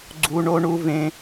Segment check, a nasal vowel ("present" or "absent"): present